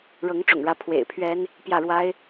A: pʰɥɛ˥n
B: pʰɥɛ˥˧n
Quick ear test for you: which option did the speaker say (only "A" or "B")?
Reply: A